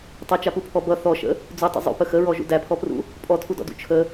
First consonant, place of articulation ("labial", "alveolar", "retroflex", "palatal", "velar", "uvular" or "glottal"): alveolar